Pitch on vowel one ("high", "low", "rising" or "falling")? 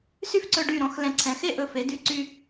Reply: falling